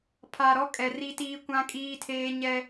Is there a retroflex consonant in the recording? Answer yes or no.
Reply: no